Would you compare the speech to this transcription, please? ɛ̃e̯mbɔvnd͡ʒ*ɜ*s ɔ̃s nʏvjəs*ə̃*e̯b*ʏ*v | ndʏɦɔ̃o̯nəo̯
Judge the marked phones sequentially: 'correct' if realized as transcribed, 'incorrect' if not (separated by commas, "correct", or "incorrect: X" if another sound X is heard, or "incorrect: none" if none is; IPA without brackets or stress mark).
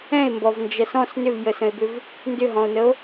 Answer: correct, correct, correct